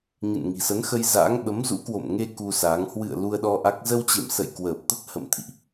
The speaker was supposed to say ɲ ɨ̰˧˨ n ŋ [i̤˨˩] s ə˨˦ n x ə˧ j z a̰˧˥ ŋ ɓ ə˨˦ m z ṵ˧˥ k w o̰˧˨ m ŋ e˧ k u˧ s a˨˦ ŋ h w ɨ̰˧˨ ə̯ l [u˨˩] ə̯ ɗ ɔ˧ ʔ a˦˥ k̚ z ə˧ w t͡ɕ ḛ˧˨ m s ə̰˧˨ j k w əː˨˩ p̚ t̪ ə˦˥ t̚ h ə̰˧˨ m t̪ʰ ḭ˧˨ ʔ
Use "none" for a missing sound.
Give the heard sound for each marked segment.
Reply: i̤˨˩, u˧

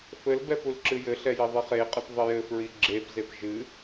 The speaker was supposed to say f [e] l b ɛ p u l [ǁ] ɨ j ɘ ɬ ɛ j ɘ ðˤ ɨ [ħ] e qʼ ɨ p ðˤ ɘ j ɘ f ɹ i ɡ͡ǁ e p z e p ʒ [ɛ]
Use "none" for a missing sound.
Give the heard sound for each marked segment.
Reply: ɘ, ǁ, χ, ɨ

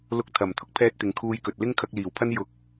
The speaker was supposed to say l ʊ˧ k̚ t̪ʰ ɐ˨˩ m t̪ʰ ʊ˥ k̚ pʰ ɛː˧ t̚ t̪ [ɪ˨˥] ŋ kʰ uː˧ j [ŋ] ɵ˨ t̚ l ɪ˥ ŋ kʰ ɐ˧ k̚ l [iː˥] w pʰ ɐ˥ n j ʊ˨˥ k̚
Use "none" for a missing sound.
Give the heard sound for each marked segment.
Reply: ɪ˨, k, iː˨˩

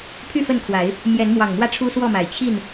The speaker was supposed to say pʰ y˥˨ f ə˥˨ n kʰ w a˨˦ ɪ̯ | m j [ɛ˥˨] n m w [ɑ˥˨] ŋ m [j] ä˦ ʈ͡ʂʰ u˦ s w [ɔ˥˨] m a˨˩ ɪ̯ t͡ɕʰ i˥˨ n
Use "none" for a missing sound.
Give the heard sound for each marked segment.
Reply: ɛ˨˦, ɑ˨˩, w, ɔ˥˨

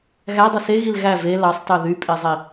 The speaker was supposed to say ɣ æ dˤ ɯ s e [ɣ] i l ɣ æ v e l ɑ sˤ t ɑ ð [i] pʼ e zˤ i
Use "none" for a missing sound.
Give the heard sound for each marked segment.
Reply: ɣ, y

